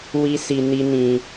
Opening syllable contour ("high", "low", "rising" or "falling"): high